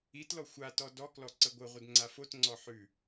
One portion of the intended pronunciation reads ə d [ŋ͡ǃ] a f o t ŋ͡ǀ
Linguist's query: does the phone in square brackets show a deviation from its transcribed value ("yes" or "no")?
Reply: yes